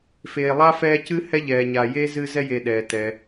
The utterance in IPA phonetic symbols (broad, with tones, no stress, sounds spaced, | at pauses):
f eː˨ lˠ a˥ f ɛː˦ c ɨ˥ h ɛ˥ ʎ ɛː˨ ɲ a˨ j e˥ z ɨ˦ z ɛ˦ j e˨ ɗ ɛː˩ t ɛ˩